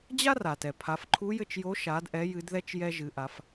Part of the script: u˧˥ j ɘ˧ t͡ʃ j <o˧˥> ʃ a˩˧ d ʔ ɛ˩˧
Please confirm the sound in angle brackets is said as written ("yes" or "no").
yes